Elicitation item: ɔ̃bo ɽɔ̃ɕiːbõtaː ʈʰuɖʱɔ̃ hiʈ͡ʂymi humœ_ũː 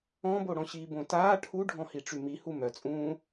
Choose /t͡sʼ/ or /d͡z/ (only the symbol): t͡sʼ